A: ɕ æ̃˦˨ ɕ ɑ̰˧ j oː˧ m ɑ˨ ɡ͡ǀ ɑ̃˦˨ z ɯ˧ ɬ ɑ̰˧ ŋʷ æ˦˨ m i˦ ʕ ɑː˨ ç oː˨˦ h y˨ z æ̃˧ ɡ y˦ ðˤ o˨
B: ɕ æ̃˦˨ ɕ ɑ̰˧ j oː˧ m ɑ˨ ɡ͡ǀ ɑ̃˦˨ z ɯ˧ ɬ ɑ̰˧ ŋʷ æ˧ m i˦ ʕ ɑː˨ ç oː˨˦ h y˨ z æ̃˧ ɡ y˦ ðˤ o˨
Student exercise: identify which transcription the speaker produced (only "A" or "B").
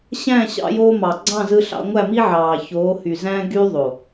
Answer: A